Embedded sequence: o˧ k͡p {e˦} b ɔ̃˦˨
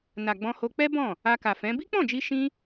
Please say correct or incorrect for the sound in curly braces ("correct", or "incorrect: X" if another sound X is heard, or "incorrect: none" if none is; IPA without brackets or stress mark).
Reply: incorrect: ɛ˦